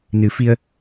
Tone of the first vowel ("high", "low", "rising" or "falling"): rising